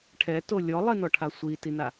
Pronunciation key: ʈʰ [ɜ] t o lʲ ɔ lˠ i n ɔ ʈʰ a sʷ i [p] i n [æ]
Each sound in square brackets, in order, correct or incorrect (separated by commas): incorrect, incorrect, incorrect